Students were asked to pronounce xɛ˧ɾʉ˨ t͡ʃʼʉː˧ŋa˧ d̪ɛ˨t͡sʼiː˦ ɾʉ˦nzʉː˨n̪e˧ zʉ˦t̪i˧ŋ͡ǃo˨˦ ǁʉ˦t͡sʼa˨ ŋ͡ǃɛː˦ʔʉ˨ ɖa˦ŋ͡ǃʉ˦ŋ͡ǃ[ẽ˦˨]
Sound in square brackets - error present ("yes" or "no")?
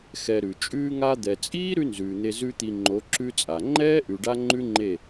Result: yes